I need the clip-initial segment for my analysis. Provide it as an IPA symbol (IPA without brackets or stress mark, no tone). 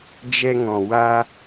d͡ʒ